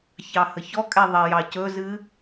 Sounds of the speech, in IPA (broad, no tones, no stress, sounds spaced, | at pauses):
ç ɑ h ə ç ɔ kʼ ɛ ðˤ ɛ j ɑ c ɵ z ɨ